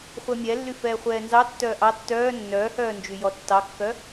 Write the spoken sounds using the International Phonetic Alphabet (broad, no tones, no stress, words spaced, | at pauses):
χʷɛmʲɛlːy fɛːχʷɛːnzɑ tːœːʔɑ tːœː nːœːhœː nd͡ʒyjɔtːɑkːœ